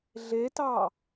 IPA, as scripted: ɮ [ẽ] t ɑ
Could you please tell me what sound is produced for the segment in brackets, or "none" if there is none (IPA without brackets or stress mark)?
e